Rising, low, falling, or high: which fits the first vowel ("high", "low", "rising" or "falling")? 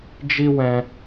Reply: high